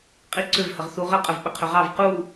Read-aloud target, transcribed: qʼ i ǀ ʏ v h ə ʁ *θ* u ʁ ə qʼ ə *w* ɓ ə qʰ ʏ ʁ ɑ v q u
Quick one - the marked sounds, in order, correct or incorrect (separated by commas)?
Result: correct, incorrect